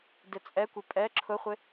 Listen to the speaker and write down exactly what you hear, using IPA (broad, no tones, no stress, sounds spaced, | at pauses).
d ɪ t͡sʼ ɛ kʷ ɪ pʼ ɛ ǁʰ ʊ χʷ ɪ